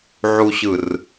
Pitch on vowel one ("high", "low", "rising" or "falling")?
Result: low